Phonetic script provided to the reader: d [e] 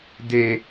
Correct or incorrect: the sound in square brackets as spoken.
correct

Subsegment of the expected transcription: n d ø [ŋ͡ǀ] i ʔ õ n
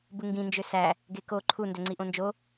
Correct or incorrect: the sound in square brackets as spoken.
correct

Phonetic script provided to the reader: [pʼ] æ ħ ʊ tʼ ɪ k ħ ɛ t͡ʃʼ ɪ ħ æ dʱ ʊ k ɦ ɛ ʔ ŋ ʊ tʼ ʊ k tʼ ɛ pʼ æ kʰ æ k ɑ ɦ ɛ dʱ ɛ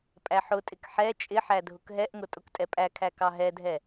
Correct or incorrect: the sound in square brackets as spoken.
correct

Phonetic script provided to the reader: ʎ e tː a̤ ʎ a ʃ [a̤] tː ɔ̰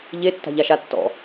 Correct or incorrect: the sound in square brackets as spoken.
incorrect: a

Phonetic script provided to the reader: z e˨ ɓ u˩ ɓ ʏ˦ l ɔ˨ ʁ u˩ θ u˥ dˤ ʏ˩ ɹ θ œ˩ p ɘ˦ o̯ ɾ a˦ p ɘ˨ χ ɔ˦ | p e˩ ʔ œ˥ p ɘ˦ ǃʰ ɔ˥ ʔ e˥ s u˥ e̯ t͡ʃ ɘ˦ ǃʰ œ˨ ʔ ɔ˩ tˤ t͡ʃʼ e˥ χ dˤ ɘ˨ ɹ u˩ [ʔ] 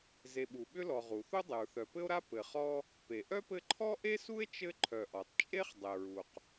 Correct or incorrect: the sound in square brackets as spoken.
incorrect: q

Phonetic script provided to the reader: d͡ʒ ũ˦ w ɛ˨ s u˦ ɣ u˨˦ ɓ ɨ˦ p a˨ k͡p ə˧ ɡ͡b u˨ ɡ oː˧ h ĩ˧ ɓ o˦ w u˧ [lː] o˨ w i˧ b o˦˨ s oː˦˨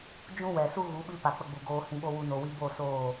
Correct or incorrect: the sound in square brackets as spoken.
incorrect: n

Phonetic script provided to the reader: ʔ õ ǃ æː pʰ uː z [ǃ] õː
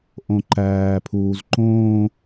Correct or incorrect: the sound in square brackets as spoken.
correct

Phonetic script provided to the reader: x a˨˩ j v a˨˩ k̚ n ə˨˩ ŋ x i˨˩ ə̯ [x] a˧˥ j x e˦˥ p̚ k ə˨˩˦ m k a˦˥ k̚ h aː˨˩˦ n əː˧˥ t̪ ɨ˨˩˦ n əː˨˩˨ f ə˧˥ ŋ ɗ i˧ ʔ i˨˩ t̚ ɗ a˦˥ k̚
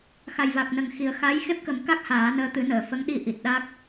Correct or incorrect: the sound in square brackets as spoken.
correct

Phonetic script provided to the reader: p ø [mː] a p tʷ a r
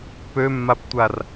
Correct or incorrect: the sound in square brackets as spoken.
correct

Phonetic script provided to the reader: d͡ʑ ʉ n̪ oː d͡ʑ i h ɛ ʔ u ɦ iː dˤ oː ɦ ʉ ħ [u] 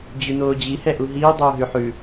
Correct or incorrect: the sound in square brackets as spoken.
incorrect: ʉ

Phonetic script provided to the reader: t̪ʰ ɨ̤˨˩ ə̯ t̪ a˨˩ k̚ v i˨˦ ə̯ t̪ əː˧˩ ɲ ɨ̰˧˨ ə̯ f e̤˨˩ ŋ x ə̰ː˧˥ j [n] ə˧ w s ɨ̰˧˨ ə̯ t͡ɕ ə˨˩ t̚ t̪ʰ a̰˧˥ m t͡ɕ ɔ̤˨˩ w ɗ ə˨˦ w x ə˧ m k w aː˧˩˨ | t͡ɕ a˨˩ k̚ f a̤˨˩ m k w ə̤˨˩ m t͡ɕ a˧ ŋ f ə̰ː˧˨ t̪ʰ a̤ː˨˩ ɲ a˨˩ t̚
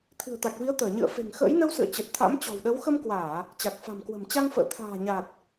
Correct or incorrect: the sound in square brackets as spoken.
correct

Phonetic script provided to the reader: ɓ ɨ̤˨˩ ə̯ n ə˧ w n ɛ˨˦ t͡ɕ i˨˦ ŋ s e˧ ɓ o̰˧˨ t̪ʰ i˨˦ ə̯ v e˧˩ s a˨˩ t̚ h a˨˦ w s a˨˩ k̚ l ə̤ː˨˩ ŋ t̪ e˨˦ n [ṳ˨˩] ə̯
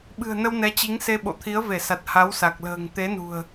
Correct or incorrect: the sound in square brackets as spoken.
correct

